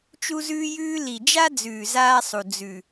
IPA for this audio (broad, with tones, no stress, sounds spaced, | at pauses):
t͡ʃ u˦ z ʉː˦ j ʉː˦ l i˨ d͡ʒ a˦ d͡z ʉː˨ z aː˦ sˤ u˨ d͡z ʉ˨